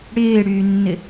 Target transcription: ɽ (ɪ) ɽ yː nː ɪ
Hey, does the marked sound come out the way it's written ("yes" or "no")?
no